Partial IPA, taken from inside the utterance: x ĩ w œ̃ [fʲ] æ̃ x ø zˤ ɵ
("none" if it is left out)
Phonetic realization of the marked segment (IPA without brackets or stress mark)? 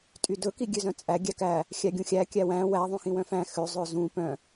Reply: f